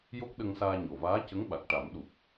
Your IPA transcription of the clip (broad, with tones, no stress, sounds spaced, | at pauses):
j o˦˥ k̚ ɗ ə˧ ŋ s aː˧ ɲ o˨˩ v aː˧˥ c ə˧˥ ŋ ɓ a˨˩ k̚ ʈ a˨˩˦ m ɗ u˨˩ p̚